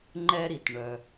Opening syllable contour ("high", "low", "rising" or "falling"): high